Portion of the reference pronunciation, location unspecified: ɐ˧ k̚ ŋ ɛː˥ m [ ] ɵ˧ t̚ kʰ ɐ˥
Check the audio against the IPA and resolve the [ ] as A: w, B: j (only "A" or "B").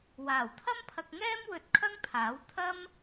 A